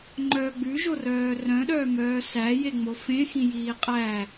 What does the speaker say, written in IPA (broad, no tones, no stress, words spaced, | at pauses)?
ŋ͡ǃœ ɡ͡bʉʒorœː rœ̃ɗœːmœː sæjeŋ͡mo fẽxĩjiː qʼæ